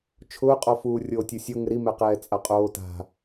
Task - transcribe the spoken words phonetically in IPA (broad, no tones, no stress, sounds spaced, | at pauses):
t͡ʃʰ ʊː qʼ ɔ f uː rʲ oː tʲ u sʲ o ŋ ɪ ɾ i m ɛ q ɛː t͡sʼ a qʼ oː t a̤